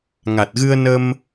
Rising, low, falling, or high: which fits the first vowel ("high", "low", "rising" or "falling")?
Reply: low